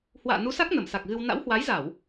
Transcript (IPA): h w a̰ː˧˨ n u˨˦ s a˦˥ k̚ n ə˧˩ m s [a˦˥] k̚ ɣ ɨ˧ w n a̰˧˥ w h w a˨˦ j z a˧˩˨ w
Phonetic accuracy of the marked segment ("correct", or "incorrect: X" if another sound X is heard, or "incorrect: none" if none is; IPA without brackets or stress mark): incorrect: a˨˩